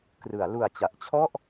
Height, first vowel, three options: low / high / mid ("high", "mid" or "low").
high